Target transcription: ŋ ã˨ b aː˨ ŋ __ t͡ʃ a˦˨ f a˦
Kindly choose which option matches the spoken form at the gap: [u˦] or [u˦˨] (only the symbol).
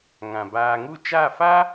u˦˨